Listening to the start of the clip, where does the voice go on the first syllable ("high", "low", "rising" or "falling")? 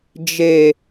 low